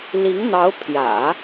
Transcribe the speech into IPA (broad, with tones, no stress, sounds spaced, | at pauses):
l i˧˥ ŋ n̪ ɑ˧˥ ʊ̯ pʰ j ä̰˨˩˦